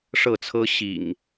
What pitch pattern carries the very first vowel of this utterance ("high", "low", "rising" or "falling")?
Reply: falling